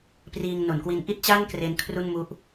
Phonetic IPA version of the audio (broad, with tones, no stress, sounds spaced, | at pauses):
p r iː˧ ŋ n o˩˦ n k w i˧ n ʔ i˥˩ t̚ t͡ɕ a˥˩ n k r e˦˥ n kʰ r u˥˩ n m u˦˥ ʔ